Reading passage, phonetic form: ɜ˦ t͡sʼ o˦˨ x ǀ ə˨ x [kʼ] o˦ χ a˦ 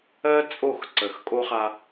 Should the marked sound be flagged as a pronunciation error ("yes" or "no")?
no